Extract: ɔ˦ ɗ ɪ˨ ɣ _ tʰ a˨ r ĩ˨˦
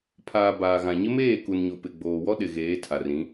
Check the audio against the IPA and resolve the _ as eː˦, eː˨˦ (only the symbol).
eː˨˦